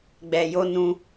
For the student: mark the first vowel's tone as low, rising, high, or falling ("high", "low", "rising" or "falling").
low